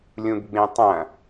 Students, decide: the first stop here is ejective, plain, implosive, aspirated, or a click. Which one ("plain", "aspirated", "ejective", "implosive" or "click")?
plain